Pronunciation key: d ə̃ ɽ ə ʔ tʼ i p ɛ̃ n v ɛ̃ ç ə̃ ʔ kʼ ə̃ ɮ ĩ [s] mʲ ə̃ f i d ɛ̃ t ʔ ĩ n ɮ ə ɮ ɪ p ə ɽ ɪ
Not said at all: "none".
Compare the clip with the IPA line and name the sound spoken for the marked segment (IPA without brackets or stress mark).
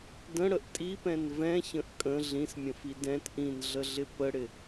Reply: s